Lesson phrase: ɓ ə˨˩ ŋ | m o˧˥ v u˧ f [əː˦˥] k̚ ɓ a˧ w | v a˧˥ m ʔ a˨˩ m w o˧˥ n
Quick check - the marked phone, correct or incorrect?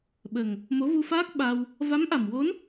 incorrect